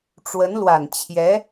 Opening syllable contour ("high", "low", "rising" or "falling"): rising